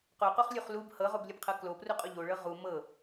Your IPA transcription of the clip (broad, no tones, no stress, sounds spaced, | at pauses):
q o q o χ lʲ u χ l u b h ɤ ʁ o b lʲ u b qʰ ɤ k l o p r u qʼ o ʎ o ɭ ɤ ʁ u m ɤ